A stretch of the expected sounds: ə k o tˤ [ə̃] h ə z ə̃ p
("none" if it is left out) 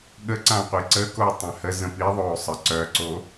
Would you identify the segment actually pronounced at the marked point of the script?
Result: ã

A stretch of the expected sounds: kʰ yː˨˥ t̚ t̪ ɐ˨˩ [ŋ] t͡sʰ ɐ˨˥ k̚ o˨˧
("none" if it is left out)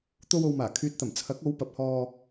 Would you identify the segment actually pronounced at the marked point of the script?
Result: m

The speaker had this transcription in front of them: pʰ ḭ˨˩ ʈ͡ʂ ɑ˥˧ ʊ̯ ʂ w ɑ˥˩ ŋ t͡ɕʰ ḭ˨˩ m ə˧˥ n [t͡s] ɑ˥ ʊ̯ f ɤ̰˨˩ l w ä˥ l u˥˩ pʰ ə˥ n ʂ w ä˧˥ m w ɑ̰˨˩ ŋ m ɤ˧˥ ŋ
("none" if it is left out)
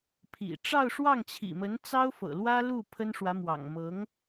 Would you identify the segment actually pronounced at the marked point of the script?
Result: t͡s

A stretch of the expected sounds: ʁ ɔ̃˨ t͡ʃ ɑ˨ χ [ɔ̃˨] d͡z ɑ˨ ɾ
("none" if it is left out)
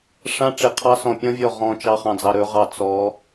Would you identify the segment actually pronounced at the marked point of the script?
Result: ɑ̃˨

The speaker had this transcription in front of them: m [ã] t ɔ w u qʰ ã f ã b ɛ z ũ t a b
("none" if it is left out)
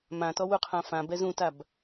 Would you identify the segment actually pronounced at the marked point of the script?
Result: ã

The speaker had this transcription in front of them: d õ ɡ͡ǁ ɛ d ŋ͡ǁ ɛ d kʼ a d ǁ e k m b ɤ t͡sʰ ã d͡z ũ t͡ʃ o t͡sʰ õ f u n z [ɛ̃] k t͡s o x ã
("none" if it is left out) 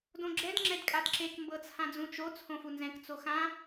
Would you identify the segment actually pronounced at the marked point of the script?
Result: ɛ̃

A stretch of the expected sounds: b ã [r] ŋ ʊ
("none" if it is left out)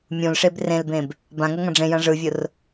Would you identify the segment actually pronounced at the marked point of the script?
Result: none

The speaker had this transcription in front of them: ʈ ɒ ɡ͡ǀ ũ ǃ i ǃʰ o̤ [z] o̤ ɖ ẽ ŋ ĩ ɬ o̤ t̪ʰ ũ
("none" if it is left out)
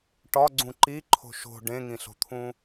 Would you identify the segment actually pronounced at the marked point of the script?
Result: ʃ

